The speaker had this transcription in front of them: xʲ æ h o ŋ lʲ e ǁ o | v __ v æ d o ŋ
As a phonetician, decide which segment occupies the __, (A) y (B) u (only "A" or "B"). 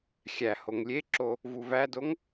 B